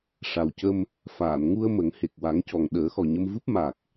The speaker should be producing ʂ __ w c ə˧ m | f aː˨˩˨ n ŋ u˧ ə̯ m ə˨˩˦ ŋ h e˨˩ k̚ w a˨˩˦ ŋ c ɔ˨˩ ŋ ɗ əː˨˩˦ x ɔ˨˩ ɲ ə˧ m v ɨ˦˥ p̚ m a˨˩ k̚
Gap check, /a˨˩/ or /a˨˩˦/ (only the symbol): a˨˩